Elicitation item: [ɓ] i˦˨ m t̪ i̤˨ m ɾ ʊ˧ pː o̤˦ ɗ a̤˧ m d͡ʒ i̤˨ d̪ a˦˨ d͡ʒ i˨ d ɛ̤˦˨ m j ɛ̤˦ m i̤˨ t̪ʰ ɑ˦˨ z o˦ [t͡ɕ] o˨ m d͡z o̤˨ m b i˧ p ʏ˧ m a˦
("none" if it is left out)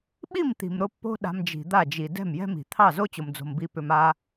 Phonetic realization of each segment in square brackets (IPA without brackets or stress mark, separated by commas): ɓ, t͡ɕ